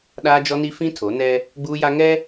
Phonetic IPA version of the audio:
ɗaː˦d͡ʒɔ˦ni˦ fĩ˦tʰo˨˦nɛ˦ | ɡ͡buː˦ja˦ ŋɛ˦

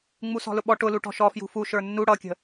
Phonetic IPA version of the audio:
ŋ͡musɔ̤lʊɓɔ ʈʊlu ʈɔ̤ʃɔ fjṳfu ʃə˞nːu ɽʌkʲə̤

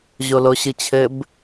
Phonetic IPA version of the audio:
ʑoloɕɨt͡ɕʰɘb

